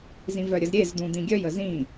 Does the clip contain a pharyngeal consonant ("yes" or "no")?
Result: no